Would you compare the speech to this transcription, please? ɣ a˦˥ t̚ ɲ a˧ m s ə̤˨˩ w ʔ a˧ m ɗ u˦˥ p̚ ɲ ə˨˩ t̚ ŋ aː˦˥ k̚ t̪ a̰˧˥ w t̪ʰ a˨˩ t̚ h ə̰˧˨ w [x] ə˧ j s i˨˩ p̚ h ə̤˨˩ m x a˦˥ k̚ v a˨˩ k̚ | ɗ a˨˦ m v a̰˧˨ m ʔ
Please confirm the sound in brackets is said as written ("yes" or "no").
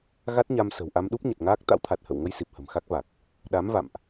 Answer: no